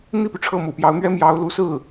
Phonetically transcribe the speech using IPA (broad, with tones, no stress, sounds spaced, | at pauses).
n̪ i˥˩ p y˩ ʈ͡ʂʰ ɤ˥˩ m ṵ˨˩ p j ɑ˧˥ ʊ̯ n̪ ɥ ɛ˥ m j ɑ˧˥ ʊ̯ l u˧˥ s ɹ̩˥˩